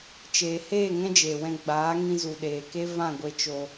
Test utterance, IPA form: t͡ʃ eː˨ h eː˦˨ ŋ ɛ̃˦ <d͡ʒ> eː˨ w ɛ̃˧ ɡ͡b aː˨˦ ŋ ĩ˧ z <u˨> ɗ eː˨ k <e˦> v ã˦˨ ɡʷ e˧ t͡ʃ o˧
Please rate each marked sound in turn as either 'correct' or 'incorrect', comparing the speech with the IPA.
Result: correct, correct, correct

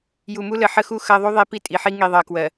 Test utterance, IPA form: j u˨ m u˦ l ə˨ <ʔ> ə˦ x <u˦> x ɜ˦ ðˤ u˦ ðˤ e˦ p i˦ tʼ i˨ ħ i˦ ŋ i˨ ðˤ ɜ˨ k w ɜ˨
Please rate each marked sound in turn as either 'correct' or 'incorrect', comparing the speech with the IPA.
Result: incorrect: ħ, correct

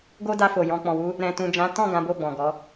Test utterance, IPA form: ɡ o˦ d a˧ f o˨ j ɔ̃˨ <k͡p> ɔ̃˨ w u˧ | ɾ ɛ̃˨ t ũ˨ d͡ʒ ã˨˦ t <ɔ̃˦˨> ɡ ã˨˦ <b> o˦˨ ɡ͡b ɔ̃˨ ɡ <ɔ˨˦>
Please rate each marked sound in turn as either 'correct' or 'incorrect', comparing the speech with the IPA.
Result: correct, correct, correct, correct

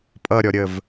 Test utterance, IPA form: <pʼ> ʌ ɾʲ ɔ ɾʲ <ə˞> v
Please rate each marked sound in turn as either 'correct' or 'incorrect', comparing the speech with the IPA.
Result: correct, incorrect: ə

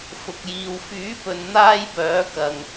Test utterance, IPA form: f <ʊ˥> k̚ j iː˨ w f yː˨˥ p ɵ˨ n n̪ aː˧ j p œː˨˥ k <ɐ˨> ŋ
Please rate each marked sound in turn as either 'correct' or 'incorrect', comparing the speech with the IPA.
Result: incorrect: ʊ˨, correct

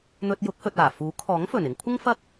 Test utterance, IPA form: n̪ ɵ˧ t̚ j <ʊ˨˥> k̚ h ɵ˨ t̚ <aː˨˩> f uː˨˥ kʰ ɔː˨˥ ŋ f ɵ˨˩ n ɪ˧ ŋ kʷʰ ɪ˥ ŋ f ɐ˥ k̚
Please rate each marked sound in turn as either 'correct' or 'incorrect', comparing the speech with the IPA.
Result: correct, correct

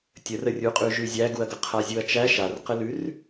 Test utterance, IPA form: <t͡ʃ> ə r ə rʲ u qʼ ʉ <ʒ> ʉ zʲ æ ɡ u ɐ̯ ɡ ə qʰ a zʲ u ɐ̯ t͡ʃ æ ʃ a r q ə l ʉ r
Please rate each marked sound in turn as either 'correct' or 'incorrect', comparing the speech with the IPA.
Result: incorrect: tʲ, correct

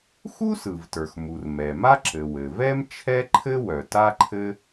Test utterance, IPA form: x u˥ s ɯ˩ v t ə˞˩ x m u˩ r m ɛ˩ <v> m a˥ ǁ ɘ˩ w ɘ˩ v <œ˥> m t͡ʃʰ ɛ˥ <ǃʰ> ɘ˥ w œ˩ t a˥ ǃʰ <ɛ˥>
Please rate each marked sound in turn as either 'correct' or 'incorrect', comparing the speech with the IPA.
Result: incorrect: none, incorrect: ɛ˥, correct, incorrect: ɘ˥

